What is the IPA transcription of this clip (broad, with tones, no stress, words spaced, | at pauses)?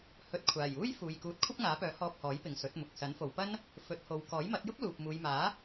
hɵ˨˥t̚kʷʰaː˨˩juː˥j fuː˨j kuː˨˥t̚kʷʰɐ˥p̚ŋaː˨˥pœː˨˥ hɔː˧p̚hɔː˨˥jpɪ˨ŋ sɵ˨˥t̚mʊ˨k̚ sɐ˨˥nfo˨wpɐ˥n | fɵ˨˥t̚ho˨˧w kɔː˨˥jmɐ˨˥t̚jʊ˥k̚ luː˨p̚muː˨˧jmaː˨˥